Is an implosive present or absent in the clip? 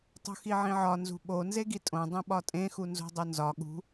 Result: present